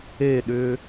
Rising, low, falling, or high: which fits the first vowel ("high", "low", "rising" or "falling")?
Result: falling